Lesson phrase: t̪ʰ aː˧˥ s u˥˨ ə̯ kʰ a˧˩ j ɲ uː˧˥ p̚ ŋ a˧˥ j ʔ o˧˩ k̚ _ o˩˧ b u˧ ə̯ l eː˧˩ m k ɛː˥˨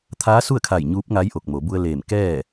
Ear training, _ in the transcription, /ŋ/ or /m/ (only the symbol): m